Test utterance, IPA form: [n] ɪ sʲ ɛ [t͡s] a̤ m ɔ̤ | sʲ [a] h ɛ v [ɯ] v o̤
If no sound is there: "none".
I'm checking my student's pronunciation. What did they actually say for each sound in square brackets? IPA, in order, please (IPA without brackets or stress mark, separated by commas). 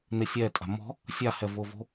n, tʼ, a, ʊ